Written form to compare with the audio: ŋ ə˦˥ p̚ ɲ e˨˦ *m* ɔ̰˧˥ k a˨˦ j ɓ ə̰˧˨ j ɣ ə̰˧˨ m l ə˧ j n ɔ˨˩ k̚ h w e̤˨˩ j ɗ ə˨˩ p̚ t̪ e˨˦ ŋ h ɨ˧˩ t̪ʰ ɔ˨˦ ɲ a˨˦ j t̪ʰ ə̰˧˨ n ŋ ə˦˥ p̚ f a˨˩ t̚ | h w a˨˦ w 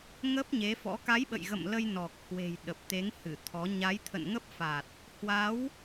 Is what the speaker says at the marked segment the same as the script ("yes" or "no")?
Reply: no